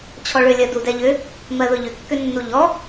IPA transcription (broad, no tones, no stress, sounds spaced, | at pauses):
t͡ɕʰ ɔ ɭ ʏ lʲ ɜ d u d ɛ ʎ ʏ | m ɜ ð ʊ ʎ ʏ kː ʏ nː u ʎ ɔ